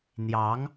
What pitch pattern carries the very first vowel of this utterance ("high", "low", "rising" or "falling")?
rising